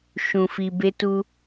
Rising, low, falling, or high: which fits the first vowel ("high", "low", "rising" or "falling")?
low